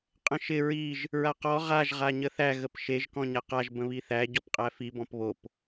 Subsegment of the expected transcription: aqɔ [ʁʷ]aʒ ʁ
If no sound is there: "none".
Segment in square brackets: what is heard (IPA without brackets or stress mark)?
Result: ʁ